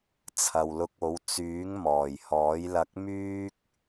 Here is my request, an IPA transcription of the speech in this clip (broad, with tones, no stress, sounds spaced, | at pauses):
t͡sʰ ɐ˨ w l ʊ˧ k̚ o˨˥ w t͡s yː˨˥ ŋ m ɔː˨˩ j h ɔː˨˥ j l ɐ˧ k̚ m yː˥ k̚